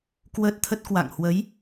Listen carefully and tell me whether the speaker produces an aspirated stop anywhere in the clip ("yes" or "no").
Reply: yes